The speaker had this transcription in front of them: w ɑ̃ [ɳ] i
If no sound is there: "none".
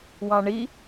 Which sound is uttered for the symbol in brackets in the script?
ɳ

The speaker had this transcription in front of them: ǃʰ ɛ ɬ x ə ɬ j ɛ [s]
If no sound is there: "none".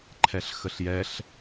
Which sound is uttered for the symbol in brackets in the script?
ɬ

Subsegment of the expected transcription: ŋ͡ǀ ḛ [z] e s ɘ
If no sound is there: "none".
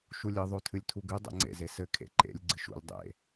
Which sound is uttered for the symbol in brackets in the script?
z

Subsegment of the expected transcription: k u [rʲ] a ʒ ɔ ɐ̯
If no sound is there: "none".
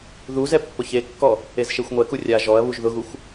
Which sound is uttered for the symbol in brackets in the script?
rʲ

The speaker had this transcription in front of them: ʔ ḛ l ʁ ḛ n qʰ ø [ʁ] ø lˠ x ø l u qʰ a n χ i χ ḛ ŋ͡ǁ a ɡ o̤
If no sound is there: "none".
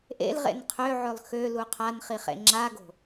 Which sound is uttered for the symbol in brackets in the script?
ʕ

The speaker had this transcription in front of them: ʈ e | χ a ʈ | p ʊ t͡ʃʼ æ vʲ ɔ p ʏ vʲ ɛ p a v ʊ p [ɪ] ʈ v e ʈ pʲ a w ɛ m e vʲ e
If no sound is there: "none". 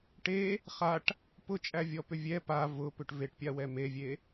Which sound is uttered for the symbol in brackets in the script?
ʏ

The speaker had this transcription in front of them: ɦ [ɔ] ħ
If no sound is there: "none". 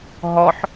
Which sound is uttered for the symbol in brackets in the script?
ɔ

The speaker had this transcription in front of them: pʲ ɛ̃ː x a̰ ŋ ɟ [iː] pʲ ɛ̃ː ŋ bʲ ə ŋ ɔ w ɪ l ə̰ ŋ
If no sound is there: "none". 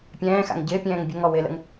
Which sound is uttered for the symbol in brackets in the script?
ɪː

